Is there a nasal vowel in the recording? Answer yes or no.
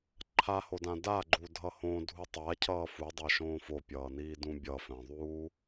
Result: yes